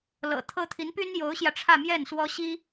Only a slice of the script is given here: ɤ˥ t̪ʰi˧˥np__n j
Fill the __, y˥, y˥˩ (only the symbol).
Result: y˥